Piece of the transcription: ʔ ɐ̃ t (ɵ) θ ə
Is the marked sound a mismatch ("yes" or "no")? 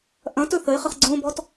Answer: no